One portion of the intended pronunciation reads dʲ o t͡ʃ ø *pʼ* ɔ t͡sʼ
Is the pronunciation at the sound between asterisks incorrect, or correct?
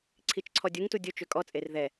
incorrect